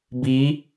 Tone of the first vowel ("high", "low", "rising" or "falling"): rising